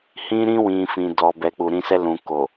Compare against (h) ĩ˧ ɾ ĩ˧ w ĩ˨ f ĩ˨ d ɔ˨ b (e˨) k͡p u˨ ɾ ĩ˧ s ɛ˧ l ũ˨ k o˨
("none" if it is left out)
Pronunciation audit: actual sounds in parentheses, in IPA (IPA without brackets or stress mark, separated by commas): h, ɛ˨